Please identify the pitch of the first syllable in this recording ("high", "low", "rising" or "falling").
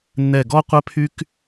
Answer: low